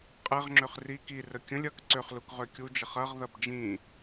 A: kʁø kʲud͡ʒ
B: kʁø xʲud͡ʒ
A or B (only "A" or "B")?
A